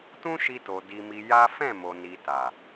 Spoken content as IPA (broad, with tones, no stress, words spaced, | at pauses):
tũ˦ʃi˧to˨ di˧mi˧ja˦ fɛ̃˦˨mo˨ni˨ ta˨